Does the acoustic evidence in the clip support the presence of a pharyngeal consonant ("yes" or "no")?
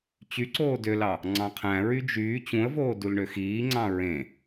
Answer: no